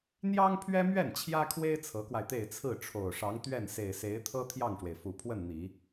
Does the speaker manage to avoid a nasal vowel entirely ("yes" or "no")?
yes